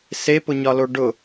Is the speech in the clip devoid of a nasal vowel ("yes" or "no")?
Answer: yes